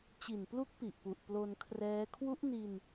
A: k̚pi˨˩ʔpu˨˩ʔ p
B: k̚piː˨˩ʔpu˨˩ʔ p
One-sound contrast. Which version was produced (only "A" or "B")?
A